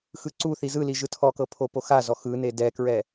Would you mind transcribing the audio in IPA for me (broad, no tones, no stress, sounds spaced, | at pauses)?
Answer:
x ɯ ǀ u θ i z ɯ l i ʒ ɯ tʰ ɔ k ɤ pʰ o p o x a z ɔ x ɯ n e d ɛ k ɹ ɛ